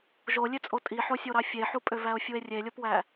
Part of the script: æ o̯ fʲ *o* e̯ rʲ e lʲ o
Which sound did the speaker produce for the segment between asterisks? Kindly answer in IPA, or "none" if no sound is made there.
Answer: u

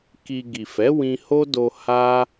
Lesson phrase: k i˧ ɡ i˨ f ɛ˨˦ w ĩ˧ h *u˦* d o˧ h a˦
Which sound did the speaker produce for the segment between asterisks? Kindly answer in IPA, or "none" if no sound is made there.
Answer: o˦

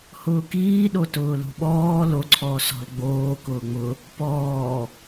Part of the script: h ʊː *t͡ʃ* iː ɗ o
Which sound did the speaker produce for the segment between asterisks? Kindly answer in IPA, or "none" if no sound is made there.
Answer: k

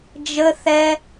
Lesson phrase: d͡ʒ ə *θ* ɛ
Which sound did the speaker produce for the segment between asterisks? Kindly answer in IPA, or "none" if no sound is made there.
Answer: θ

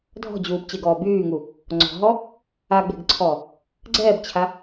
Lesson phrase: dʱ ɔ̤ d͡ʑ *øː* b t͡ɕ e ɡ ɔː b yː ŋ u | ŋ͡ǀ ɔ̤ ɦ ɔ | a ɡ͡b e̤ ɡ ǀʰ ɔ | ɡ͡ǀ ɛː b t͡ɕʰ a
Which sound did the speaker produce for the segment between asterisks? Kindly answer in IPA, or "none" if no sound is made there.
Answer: uː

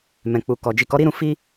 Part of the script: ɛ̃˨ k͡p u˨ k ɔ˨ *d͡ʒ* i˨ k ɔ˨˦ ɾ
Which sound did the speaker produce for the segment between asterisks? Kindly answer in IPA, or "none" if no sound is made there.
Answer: d͡ʒ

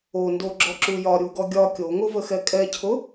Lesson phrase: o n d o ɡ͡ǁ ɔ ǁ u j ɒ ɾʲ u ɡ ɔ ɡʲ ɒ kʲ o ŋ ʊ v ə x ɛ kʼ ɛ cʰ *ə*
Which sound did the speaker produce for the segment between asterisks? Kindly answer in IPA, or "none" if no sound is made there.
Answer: ʊ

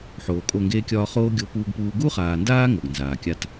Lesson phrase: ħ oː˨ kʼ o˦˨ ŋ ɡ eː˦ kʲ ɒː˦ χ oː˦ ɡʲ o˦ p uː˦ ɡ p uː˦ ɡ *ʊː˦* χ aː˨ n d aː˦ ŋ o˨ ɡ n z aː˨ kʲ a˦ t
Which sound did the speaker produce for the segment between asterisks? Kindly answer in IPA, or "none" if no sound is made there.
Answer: uː˦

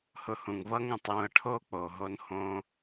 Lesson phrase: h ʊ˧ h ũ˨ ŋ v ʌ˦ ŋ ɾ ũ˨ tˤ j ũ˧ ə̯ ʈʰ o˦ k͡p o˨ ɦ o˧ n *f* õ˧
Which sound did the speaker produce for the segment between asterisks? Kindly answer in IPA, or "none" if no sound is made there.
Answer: h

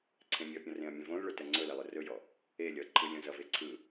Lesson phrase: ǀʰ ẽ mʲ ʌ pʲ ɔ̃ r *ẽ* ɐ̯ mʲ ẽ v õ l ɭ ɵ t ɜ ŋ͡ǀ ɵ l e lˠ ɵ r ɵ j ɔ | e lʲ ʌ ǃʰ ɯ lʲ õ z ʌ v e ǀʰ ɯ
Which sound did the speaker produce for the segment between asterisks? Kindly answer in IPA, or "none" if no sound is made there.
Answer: ẽ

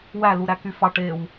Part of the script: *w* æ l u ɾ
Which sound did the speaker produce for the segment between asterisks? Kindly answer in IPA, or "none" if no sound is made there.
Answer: w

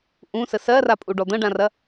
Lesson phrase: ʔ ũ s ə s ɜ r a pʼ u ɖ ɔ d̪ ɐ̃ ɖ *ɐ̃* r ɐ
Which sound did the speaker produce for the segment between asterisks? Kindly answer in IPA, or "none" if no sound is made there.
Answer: ã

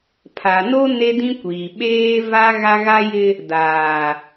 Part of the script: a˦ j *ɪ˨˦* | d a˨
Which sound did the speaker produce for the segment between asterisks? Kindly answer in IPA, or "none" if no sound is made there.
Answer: ɪ˦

